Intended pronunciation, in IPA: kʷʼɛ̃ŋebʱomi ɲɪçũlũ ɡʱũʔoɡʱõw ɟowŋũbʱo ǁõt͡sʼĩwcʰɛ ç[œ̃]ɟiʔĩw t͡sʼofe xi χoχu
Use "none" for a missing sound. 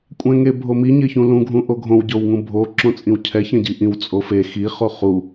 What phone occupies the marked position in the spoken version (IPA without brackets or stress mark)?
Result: ɛ̃